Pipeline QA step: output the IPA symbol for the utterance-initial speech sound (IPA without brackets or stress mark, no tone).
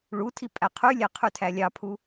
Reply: ɭ